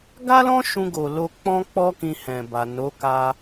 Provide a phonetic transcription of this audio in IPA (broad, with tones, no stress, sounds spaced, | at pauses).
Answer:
ɡ a˦ l ɔ̃˦ ʃ ũ˧ ɡ o˨ l o˧ k͡p ɔ̃˦ k͡p ɔ˦ k ĩ˧ h ɛ̃˨ b a˨ n o˨˦ k a˧